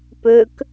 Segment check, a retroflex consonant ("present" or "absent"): absent